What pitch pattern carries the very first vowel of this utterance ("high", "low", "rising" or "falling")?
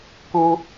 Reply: high